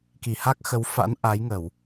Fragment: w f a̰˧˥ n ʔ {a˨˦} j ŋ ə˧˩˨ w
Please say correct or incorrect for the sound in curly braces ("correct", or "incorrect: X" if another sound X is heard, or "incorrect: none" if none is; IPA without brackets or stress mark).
correct